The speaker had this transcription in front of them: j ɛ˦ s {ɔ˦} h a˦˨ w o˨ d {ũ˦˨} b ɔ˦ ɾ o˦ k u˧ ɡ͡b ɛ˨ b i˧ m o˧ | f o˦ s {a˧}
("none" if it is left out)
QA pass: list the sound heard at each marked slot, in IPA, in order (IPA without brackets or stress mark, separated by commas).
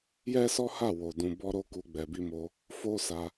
ɔ˦, ũ˧, a˧